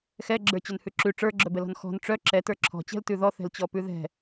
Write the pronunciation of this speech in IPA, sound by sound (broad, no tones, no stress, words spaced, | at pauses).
xɛɡ͡ǁə˞ t͡ɕœnhʉǁʉ ʈ͡ʂə˞ɡ͡ǁœbɛlɔ̤n xɔ̤n ʈ͡ʂœ ǁɛtə˞ ǁʰɔ̤t͡ɕɛ̤l tʉðɔ θɛ̤lt͡ɕɔpʉðɛ̤